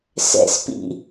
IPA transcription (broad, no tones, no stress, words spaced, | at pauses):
sɛ̰spḭ